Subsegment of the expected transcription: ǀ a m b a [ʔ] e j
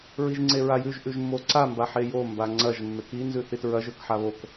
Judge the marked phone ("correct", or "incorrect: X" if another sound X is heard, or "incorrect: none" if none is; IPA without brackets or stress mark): incorrect: ħ